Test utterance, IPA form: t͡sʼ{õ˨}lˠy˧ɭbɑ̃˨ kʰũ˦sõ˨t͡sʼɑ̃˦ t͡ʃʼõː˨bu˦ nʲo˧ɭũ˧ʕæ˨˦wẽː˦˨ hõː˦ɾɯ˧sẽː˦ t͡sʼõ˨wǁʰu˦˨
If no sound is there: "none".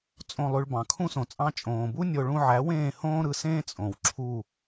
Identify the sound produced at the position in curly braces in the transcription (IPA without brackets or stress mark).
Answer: õ˦˨